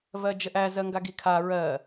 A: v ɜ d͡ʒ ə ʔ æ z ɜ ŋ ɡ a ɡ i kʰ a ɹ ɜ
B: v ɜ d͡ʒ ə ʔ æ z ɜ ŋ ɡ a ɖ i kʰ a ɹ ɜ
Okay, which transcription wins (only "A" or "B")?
A